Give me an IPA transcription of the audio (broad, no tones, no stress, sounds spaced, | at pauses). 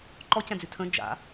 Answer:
ǃ ɔ c ɛ̃ d͡z y tʰ ə̃ d͡ʒ a̰